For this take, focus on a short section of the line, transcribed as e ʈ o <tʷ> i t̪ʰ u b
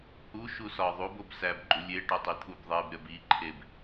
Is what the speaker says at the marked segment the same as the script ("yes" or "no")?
no